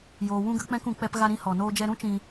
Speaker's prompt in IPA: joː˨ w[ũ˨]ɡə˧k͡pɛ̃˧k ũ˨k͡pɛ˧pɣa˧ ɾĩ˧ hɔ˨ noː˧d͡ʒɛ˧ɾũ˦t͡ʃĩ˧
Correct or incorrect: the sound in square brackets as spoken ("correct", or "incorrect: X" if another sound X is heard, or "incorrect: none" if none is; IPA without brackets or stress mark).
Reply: incorrect: ũ˧